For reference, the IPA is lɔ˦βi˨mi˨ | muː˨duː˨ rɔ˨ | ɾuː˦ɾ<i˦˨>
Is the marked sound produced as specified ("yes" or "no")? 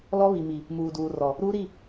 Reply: yes